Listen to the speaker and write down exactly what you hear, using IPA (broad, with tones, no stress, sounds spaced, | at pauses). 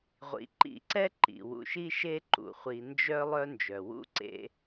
ʁʷ ḭ˩ ǃ ḭ˨ ǀ ɛ˦ ǃ ḭ˩ w ṵ˨ ʃ i˥ ʃ e˥ ǃ ṵ˩ χʷ i˨ n d͡ʒ œ˦ lˠ œ˦ n d͡ʒ œ˩ w ṵ˦ ǀ ḛ˦